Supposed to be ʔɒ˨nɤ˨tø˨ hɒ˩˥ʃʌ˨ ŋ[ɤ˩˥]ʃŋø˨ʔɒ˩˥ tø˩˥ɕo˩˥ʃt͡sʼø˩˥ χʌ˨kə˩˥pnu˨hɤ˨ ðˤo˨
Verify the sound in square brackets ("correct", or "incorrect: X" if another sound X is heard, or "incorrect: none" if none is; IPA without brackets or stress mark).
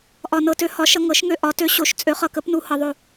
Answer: correct